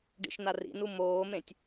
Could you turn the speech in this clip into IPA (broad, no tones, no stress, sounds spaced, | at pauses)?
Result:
ɖ ḭ ʃ n a r ḭ n u m oː m ẽ tʲ